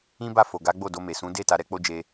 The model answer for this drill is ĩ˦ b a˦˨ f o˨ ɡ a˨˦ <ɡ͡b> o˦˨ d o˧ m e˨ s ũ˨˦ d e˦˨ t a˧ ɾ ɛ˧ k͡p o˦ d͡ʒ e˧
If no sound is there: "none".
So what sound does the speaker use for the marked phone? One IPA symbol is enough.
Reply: ɡ͡b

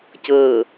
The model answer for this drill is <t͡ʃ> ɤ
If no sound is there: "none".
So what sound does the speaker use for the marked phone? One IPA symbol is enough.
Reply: c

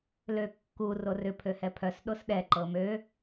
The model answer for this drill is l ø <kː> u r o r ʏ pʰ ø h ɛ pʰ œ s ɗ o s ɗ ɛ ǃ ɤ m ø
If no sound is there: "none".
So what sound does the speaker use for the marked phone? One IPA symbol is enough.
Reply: kː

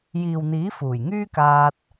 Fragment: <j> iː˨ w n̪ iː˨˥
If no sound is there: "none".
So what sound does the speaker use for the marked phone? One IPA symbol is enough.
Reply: j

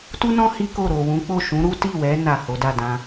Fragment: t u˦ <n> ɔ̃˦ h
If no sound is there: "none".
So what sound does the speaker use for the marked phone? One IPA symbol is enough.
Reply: n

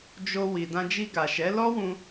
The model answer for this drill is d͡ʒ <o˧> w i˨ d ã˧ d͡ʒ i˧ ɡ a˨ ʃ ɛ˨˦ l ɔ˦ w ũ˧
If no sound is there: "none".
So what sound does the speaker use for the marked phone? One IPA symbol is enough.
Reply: o˧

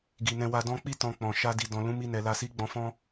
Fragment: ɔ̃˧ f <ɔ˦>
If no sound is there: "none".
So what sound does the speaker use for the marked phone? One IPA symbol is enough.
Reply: ɔ̃˦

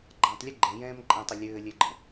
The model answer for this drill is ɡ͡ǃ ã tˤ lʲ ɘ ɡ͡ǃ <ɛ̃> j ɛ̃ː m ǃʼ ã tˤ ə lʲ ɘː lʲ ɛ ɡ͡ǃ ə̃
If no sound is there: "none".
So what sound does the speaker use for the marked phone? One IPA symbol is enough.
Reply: ɛ̃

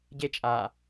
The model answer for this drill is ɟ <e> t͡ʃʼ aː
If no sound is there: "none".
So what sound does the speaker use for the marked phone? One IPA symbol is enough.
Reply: e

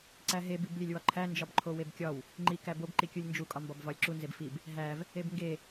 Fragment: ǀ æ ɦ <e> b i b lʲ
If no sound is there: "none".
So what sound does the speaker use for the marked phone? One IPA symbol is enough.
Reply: e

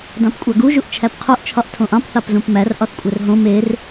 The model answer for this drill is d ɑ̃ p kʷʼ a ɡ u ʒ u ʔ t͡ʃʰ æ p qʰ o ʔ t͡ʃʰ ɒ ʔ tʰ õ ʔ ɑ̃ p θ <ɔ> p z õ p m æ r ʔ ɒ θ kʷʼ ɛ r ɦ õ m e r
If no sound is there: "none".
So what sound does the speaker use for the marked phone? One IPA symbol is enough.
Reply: ɑ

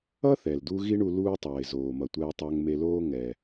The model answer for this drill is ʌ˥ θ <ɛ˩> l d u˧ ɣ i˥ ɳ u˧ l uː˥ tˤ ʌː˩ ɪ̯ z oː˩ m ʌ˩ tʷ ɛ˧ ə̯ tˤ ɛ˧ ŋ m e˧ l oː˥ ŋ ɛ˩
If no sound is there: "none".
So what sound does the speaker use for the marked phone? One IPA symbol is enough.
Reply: ɛ˩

